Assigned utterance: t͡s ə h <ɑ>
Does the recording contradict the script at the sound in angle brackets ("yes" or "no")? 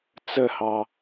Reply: no